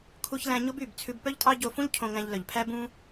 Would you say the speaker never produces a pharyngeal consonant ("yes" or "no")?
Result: yes